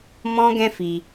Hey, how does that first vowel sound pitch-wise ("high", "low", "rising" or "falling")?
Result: high